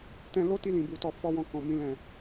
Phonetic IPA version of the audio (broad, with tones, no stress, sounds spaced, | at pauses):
t ɛ̃˧ l o˦ t i˧ l ĩ˨ b u˧ t ɔ˧ f ɔ˦ w ɔ̃˧ k ɔ̃˨ m ĩ˧ l ɛ̃˨